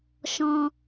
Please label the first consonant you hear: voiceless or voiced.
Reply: voiceless